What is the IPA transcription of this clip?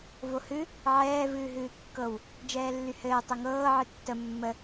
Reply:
vohɨ | ʕɛː vɨːɦɨːkːɤw | d͡ʒɛːlːyhɘː tˤɘŋɤː ʕɨtːə mːə

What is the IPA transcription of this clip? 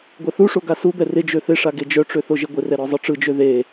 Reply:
ɡʷɛθuʂo ɡasubɛ rɪd͡ʒø θɪʂa ɡed͡ʒœʈ͡ʂø θoʒeɡʷɪrɛ ɾɔzˤɯʈ͡ʂɯd͡ʒø ðe

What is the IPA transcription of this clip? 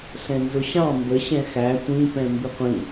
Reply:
ɬɛ̃nzʊɕɑ̃ mbə ɕɛ̃xæ tʷĩpɛ̃ mbɪqʷĩ

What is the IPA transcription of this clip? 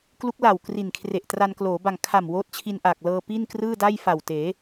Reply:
klu˦˥k̚la˨˩w kri˨˩nkʰre˨˩ʔtra˧n kloː˩˦ ba˨˩ŋ kʰa˨˩m woː˦˥t̚t͡ɕʰi˧nʔaː˨˩k̚lɤː˧ pi˥˩nkrɯː˥˩da˥˩jfa˨˩w teː˩˦

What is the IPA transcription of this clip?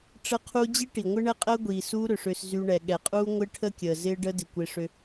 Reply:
ʈ͡ʂə˦qʰu˦ d͡ʑi˦ʈi˨ŋʷɪ˦ ɳɛ˦qʼəː˦ɡʷiː˨ suː˦ɾʏ˨ʂʏː˧s zy˧ɳɛ˨ɠɛ˨qʼuː˦ ŋʷɪː˦ʈʰə˦ kʲəː˨zɪː˦ɖə˦ dɪ˨kʷɪ˧ʂʏ˧

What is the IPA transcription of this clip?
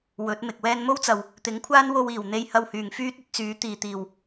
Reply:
wɵ˨˥t̚mɪ˨k̚ wɛː˧nmo˥wt͡sɐ˨w | t̪ɪ˨˥ŋkʷʰaː˥nwo˧w iː˨˩w n̪e˥j hɐ˧whyː˨˩ŋfyː˥t̚ ɵ˥t̚t͡syː˨˥ t̪iː˨˩t̪iː˨˩w

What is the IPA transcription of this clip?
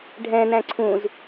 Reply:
ɖʱɛ̃næ̃ ǀʰũz

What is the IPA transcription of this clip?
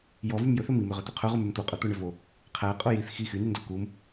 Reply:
jɔvym jɵθɵ mimøʁɵt̪ɵ qʰœʁumʉm t̪oqʼœt̪oɳø vo | qʰæqʼo jiθ xi xynyndɔ kum

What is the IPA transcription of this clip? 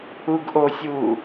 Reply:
uɡʔosʲuː

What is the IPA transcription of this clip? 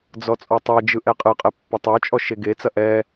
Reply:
d͡zɔt͡sʼɔtˤɛd͡ʒɯ ʔɛqʼɯqʼɛ pːɐtˤə˞t͡ʃʼɔ ʃeɡet͡sɐ ʔɛ

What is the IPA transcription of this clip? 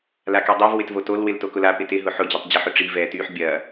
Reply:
lakydˤov wɪtvotol wɪltokʊla pɪtɪ ɦʊħʊ d͡ʑytˤd͡ʑɪ ħʊʈ͡ʂi vɛtyħ bʲɐ

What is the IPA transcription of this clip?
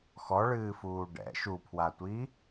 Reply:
xɔɭɨːfuː ɖɛ̰ ʃupʰwatʷi

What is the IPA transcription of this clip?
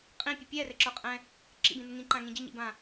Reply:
qʼĩpʲɨ pʲɛrɘǁə˞qʼɛ̃ | ǁḭbĩnɘ ŋĩǃãŋĩ ɟɘɲḭbã

